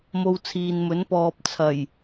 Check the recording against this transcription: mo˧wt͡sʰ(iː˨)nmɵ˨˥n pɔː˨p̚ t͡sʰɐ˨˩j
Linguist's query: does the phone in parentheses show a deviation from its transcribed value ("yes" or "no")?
no